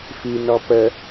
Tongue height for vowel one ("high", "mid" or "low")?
high